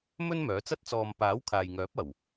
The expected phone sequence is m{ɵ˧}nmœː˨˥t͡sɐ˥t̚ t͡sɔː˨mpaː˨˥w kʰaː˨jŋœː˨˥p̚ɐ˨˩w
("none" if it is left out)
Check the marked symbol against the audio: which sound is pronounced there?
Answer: ɵ˥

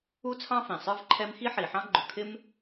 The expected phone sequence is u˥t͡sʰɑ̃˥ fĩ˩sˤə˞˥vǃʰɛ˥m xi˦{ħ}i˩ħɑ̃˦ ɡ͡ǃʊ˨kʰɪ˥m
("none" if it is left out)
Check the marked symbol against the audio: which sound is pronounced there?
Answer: ħ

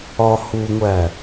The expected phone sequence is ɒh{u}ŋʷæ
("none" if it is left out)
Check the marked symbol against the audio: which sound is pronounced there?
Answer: u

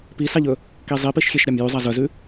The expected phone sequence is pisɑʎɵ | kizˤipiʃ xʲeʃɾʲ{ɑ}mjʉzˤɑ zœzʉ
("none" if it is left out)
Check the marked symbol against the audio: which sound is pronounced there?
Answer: ɑ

